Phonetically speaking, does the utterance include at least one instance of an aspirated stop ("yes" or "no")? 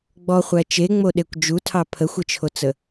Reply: yes